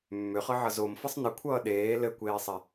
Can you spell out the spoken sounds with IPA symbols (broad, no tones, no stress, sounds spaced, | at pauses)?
mː ʏ χ ɤ ʕ ʌ z o m f ʌ sˤ n ɘ kʷʰ ʌː ɗ eː l ɘ kʷ eː sˤ ɛ